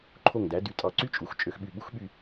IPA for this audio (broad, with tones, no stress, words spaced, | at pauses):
ǃʰo˧˩ŋdæ˩˧dy˩˧ tʼɑ˧˩ǀy˥t͡ʃʼu˩˧x t͡ʃʼø˧xɓy˧˩ ɓu˥xɓy˥˧